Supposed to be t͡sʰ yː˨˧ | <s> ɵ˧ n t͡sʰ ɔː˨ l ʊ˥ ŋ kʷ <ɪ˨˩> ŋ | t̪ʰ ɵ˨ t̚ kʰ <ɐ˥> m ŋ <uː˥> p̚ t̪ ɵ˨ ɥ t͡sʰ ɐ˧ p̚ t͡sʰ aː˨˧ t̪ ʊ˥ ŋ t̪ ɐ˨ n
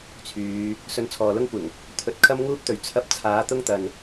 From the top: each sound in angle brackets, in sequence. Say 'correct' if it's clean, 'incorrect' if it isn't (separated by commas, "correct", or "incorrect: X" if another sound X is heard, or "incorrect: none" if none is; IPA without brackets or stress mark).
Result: correct, correct, correct, correct